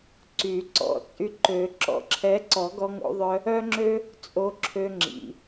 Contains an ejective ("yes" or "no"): yes